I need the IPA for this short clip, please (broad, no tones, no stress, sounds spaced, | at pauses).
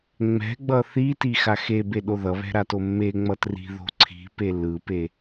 ŋ͡m ɛ̤ ɡ͡b ʌ θ i t i x a x e b e ɗ o ð ʌ β ɛ̤ ɾ a t o mː e ŋ͡m ʌ t r i̤ ð o̤ ǀʰ i̤ p e l ɯ p e